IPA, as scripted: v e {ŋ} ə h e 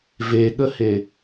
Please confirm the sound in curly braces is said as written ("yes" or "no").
no